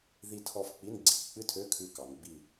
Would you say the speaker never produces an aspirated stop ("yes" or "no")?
no